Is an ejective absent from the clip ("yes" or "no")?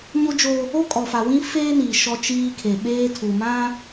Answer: no